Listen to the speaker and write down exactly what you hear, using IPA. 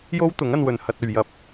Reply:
j o˥ w t̪ ʊ˨˥ ŋ ɐ˧ n w ɵ˨ n h ɐ˧ t̚ ɵ˨ ɥ j ɐ˧ p̚

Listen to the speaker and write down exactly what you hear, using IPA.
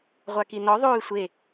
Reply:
ʁʷ a k i n ɔ ðˤ oː y̯ sʷ e

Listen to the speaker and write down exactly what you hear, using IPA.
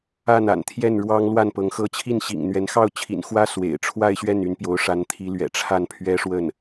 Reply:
a˥˩ n a̰˨˩ n t̪ʰ j ɛ˥˩ n ɻ w ɑ˥ ŋ l w a˥˩ n p ɤ˧˥ ŋ x ɤ˥ t͡ɕʰ i˥˩ n ɕ ḭ˨˩ ŋ n̪ ɥ ɛ˧˥ n x ɑ˥˩ ʊ̯ t͡ɕʰ ḭ˨˩ n x w ä˥ s w ḛ˨˩ ɪ̯ ʈ͡ʂʰ w a˥˧ ɪ̯ ɕ ɥ ɛ˥˩ n y˧˥ n p j o˧˥ ʊ̯ ʂ a˧˥ n t̪ʰ i˧˥ l ɥ ɛ̰˨˩ ʈ͡ʂʰ a˥˩ n pʰ ɥ ɛ˥ ʂ w ə˥˩ n

